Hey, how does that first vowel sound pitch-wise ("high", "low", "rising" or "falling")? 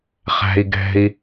low